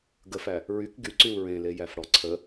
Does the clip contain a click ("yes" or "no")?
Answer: yes